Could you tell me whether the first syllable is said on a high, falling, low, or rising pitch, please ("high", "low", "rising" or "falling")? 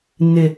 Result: low